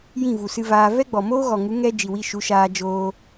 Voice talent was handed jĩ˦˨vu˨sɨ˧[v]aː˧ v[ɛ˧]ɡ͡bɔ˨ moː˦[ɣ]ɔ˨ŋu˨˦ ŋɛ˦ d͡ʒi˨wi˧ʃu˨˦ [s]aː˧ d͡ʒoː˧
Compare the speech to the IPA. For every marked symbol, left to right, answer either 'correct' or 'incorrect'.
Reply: correct, incorrect: ɛ˦, correct, incorrect: ʃ

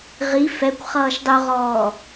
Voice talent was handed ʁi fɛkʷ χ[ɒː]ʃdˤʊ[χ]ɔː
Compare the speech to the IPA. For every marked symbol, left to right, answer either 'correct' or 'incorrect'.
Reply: incorrect: ʌː, incorrect: ʁ

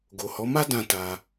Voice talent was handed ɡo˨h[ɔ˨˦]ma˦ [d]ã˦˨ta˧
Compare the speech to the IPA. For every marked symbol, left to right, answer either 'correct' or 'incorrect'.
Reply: correct, correct

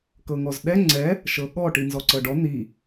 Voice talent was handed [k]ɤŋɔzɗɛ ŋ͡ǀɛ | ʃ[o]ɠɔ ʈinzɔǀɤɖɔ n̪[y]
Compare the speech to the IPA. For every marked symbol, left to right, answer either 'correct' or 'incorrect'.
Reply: correct, incorrect: ɤ, incorrect: i

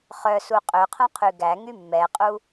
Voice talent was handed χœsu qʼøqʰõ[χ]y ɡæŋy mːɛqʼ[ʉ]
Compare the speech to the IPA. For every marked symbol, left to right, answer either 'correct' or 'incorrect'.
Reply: incorrect: qʰ, incorrect: u

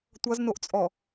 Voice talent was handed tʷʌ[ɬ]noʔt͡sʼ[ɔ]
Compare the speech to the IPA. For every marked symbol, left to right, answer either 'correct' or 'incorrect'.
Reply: incorrect: z, correct

